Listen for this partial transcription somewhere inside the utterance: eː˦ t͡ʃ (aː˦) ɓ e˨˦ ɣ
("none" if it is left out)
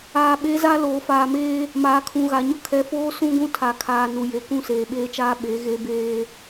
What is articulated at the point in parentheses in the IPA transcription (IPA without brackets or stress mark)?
aː˦